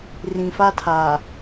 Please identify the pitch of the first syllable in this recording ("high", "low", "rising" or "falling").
low